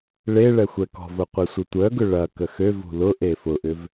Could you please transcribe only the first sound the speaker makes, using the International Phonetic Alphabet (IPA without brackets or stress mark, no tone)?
ɭ